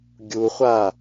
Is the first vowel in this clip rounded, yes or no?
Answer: yes